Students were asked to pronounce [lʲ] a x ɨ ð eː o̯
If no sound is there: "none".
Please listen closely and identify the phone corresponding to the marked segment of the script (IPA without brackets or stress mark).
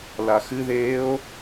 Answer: l